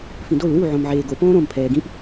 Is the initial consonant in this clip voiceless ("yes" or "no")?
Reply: yes